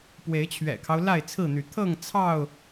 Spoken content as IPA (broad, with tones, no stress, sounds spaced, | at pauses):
p w e˨˦ ɪ̯ t͡ɕʰ ɥ ɛ̰˨˩ kʰ ɑ˦ ʊ̯ l a˥˨ ɪ̯ t͡sʰ ɹ̩˥˨ n̪ y˨˦ t̪ʰ ɤ˥˨ ŋ t͡sʰ ɑ˥˨ ʊ̯